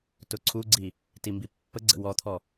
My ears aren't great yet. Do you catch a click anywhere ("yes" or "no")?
yes